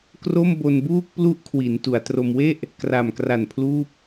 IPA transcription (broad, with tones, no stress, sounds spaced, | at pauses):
k r o˥˩ m b o˧ n b uː˥˩ k̚ p l u˦˥ ʔ kʰ w i˩˦ n t u˩˦ a̯ t r o˧ m w e˥˩ ʔ | k r a˨˩ m k r a˨˩ n pʰ l uː˥˩ p̚